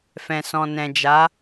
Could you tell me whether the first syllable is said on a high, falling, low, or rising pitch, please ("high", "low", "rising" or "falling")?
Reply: low